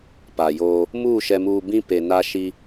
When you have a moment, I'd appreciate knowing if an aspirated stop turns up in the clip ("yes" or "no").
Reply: no